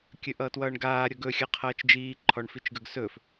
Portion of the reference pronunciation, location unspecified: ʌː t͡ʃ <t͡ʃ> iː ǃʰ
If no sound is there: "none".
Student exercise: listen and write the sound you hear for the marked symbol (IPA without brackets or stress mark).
d͡ʒ